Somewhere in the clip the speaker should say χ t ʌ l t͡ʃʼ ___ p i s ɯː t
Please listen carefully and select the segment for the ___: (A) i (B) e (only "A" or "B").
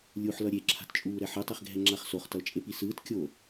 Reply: B